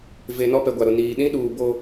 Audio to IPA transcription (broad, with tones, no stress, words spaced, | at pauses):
ve˨ nɔ˦pɛ˨ɡʷa˨ɾʊ˨ niː˨ ɗĩ˦ɗuː˨ bo˦